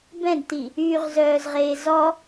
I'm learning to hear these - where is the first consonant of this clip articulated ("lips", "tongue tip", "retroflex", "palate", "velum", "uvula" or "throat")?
lips